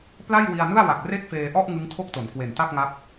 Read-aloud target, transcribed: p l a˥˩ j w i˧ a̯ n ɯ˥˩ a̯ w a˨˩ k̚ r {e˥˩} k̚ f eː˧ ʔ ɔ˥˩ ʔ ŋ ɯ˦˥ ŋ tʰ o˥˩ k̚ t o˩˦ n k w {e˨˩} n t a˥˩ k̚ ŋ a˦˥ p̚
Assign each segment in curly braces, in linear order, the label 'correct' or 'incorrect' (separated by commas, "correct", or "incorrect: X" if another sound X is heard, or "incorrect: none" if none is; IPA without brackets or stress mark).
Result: correct, correct